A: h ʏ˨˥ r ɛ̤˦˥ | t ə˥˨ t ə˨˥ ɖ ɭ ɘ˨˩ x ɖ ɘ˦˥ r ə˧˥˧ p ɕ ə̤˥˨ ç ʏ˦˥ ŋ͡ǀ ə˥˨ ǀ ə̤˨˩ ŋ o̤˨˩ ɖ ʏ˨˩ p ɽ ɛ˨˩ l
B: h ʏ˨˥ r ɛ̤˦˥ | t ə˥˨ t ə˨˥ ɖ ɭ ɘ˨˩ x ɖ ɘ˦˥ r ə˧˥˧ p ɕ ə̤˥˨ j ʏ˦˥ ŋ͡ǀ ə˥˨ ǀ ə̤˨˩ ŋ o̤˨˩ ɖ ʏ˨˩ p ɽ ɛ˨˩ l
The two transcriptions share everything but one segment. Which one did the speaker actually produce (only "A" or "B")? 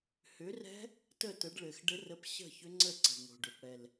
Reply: A